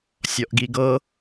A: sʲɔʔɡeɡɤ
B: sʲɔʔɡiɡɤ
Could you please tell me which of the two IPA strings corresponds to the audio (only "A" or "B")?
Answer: B